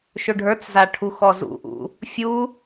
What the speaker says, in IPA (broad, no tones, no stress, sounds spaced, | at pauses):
ʃ ɵ ɖʱ ə˞ t͡s z a ʈʰ u x ɔ z ṵ ʔ ṵ | fʲ u